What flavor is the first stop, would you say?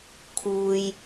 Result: aspirated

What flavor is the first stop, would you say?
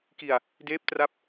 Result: plain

